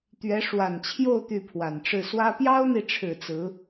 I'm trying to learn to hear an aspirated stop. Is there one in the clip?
yes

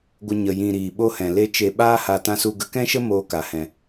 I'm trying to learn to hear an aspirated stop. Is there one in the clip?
no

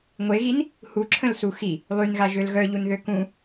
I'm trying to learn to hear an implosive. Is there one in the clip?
no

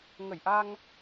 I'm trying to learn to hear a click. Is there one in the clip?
no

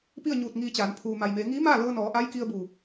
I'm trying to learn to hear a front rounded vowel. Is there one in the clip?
no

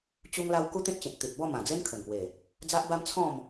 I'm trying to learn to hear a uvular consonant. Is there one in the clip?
no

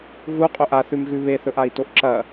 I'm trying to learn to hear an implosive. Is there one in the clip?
no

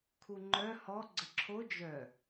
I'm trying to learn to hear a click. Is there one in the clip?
yes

